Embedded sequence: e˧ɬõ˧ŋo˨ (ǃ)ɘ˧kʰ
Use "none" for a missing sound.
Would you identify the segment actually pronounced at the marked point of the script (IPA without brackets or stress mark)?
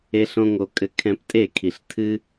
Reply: kʼ